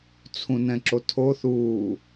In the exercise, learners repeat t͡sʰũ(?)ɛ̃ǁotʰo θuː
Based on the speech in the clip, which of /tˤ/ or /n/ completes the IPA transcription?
n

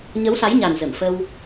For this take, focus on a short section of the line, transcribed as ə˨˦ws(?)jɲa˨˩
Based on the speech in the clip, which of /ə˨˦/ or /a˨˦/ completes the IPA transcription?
a˨˦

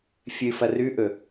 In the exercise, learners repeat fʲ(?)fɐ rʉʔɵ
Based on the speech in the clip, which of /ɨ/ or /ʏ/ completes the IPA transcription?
ɨ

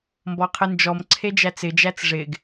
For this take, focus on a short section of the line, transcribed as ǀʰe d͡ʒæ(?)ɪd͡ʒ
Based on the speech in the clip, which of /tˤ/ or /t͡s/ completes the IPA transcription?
t͡s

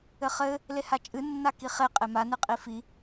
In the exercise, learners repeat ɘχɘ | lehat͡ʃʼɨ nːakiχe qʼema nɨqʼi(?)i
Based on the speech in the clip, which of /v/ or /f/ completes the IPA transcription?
f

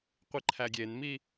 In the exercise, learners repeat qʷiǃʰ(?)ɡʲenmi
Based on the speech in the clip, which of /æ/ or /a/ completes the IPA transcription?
æ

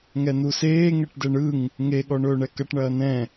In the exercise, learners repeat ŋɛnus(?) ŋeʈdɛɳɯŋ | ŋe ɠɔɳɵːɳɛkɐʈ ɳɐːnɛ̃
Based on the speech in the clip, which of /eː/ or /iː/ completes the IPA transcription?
eː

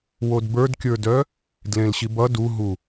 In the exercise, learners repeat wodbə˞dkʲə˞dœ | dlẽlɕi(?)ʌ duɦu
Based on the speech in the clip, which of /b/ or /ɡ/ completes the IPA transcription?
b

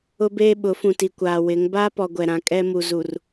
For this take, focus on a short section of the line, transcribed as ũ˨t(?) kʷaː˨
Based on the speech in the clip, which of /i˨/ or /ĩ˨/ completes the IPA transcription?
i˨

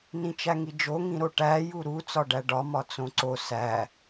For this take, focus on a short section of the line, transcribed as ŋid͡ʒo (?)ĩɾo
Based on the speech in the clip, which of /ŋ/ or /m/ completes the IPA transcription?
ŋ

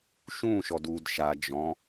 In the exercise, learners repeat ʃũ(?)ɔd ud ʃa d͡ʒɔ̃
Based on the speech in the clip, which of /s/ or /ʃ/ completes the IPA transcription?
ʃ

